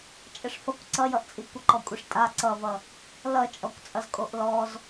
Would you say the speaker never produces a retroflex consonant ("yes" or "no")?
no